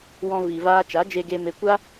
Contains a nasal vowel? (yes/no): yes